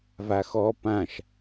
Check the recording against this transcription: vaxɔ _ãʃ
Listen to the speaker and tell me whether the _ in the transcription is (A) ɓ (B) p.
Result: B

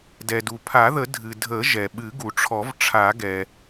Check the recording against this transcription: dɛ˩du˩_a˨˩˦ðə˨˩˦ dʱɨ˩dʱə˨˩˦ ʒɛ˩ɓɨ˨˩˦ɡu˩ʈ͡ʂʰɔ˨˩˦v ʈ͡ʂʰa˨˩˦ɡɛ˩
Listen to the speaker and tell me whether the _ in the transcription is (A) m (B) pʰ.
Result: B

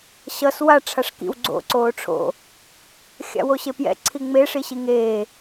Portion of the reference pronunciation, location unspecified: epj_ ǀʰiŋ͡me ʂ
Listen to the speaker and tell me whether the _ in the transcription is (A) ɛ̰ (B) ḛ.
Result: A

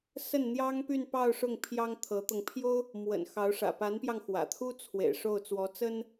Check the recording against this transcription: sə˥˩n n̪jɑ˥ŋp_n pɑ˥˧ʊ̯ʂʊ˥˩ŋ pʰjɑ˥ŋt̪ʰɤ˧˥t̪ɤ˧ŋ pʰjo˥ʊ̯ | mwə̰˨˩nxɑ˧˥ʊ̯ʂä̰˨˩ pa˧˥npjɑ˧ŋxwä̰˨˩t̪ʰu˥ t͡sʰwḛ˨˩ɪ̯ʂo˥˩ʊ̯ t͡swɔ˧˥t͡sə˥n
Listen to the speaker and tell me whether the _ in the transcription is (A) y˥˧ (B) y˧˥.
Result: A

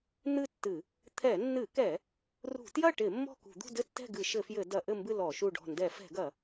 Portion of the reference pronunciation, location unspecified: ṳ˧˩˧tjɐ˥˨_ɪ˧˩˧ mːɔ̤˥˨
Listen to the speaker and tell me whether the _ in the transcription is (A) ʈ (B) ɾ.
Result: A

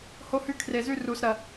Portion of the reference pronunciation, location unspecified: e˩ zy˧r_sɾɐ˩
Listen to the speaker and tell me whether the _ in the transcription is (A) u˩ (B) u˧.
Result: A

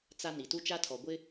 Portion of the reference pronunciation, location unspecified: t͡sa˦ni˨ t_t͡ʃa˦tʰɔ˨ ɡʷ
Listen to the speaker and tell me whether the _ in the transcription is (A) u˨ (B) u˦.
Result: B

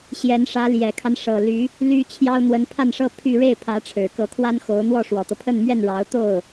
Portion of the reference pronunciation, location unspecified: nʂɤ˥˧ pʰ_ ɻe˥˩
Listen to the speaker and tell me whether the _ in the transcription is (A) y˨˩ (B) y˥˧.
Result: B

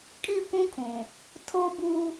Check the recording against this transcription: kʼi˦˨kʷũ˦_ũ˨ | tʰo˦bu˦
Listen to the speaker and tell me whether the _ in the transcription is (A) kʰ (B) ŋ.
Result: A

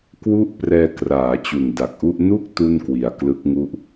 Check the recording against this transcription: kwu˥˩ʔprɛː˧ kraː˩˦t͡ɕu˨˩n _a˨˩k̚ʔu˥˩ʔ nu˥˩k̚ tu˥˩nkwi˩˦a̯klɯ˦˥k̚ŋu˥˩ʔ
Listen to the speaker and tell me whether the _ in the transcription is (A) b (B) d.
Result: B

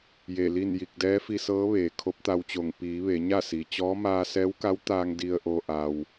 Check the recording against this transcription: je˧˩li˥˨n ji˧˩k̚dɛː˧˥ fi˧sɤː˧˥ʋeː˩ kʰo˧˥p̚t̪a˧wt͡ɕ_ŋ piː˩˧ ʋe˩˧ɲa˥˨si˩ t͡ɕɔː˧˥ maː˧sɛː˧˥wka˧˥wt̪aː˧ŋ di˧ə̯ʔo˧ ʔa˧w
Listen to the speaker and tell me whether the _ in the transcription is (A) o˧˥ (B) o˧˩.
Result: B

